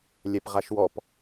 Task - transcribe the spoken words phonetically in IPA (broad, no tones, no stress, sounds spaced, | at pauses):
lʲ ɛ p ʁ a ʃ w ɔ p